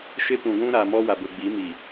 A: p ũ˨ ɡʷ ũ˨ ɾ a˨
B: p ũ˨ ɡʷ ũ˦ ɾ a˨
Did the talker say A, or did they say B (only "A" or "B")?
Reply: B